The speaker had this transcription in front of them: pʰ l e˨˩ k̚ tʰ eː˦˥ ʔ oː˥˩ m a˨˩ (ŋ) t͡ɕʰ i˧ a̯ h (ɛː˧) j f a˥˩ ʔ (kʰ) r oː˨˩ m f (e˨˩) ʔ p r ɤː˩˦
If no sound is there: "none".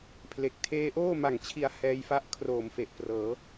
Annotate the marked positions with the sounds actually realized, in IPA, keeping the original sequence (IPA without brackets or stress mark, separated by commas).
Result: ŋ, ɛː˧, kʰ, e˨˩